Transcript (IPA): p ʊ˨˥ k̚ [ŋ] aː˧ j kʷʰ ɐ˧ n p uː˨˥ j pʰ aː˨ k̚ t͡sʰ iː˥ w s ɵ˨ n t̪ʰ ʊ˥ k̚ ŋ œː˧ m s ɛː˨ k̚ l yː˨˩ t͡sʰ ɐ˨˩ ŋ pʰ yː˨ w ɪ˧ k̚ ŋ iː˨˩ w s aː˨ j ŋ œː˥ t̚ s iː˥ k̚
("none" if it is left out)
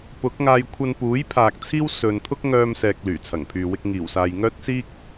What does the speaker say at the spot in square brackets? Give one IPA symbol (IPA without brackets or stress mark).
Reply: ŋ